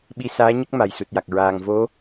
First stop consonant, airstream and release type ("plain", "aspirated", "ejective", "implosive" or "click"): implosive